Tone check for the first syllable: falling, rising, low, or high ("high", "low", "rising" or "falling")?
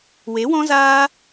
rising